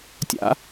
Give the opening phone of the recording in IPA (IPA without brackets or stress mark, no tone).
tʲ